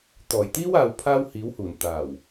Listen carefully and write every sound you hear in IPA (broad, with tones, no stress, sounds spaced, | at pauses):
t̪ ɔː˨˩ j t̪ iː˥ w aː˧ w pʰ aː˥ w h iː˨˥ w h uː˨˩ n t̪ aː˨˩ w